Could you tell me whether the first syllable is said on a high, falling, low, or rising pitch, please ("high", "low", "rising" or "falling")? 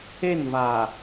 falling